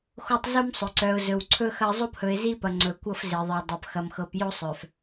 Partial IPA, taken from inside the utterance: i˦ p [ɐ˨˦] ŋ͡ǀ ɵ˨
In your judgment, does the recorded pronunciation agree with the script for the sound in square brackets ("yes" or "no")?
no